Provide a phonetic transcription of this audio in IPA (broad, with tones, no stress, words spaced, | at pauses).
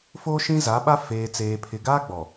fo˦ʃĩ˦ za˨˦ɓa˦ feː˨t͡seː˨pʰɪ˨ ɡaː˦ɡ͡bɔ˨